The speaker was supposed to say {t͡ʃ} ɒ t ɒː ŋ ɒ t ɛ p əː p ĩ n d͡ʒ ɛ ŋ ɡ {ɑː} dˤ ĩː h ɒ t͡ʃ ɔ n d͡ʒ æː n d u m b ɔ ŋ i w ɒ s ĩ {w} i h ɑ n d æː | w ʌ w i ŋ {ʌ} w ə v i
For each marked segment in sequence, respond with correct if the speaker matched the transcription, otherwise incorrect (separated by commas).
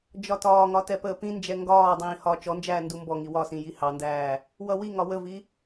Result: incorrect, incorrect, incorrect, incorrect